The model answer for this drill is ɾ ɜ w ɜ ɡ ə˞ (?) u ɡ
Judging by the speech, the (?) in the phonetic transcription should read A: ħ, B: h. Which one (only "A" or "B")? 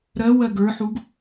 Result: A